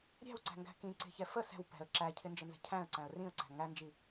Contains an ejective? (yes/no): no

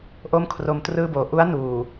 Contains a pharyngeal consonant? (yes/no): no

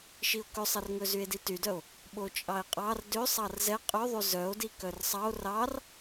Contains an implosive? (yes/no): yes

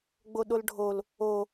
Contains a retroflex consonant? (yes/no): yes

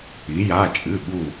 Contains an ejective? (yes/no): yes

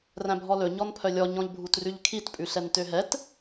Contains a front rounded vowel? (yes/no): yes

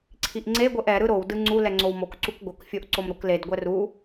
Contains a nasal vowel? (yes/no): no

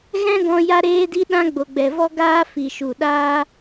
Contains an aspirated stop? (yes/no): no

